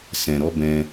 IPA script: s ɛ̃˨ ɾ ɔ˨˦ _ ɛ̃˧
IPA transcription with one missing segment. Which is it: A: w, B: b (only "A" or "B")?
B